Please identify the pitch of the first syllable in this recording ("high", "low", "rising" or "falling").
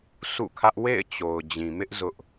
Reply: falling